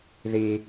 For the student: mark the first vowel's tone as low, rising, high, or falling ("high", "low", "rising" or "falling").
high